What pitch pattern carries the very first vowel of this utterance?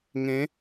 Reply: rising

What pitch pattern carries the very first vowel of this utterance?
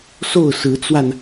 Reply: falling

